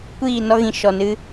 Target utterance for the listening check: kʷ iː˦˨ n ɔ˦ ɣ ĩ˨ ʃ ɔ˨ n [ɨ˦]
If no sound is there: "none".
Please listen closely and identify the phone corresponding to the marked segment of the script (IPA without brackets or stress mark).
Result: ɨ˦